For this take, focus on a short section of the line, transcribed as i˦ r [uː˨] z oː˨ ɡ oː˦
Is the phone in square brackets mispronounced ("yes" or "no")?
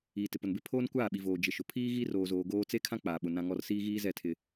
yes